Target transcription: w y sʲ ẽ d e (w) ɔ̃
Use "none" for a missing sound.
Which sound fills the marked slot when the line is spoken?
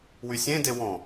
w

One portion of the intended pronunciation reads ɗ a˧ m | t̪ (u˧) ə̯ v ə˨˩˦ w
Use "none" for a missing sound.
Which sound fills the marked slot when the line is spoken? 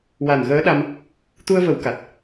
u˧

